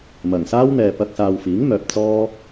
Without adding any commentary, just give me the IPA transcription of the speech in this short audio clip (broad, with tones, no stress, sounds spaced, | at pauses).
m ɐ˨˩ ŋ s aː˥ w n̪ ɛː˨ p ɐ˧ k̚ s aː˨ w f iː˨˥ ŋ m œː˨ p̚ t͡s ɔː˥